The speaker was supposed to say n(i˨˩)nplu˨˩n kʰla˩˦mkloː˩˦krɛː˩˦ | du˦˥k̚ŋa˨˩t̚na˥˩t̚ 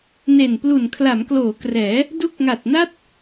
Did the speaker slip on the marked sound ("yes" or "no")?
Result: yes